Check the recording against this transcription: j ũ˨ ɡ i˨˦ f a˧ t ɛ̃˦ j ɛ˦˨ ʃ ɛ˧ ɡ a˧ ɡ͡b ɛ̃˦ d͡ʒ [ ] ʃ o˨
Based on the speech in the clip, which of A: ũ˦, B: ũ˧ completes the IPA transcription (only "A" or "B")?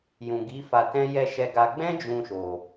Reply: B